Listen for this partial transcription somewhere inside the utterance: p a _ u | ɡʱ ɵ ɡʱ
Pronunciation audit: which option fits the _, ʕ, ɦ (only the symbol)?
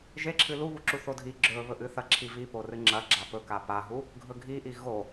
ɦ